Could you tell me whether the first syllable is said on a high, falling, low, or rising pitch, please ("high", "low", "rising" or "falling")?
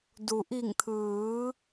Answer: low